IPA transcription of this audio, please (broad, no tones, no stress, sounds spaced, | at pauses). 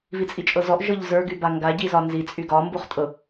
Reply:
v i t͡sʼ i t͡ʃʼ ɤ z ɔ ʔ ʒ ɤ ʎ z ə˞ ɡ y b a ŋ ɡ a ɟ i z ɒ n z i t͡sʼ y ɡ ɒ m b u χ tʼ ɤ